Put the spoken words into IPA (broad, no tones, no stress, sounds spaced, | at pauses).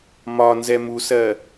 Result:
m ɒ n z ɛ m u s ɜ